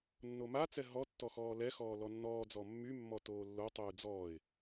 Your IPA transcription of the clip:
nː o m a t͡s ɛ ɦ ɔ tː ɔ x ɔː l ɛ x ɔː l ɔ nː ɔː d͡z ɔ mː y mː ɔ t oː lː o tˤ yː d͡z ɔː ɪ̯

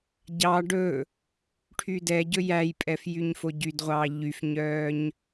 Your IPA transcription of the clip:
ɟ ɑ ɖ ɵ | ʈʰ y d ɛ ɟ ɵ j æ j pʼ ɛ f j y ɲ f o ɟ y d ʁʷ ɑː ʎ y f ɲ œː ɲ

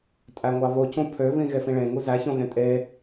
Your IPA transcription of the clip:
tʼ æ ŋʷ ɑ β o c ũ pʰ ø β ĩ ɣ e f ĩ ɭ ẽ ŋ u z æ ç õ ɣ ẽ tʼ e

